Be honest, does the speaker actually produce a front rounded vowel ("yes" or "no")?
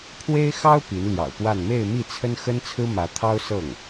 no